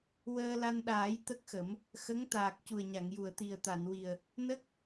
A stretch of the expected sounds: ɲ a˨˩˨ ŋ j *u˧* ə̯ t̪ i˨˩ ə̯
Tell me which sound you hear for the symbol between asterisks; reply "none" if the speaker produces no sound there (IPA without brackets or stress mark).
u˨˩˨